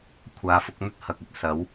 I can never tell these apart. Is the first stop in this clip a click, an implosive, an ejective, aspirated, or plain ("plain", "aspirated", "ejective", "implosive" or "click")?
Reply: aspirated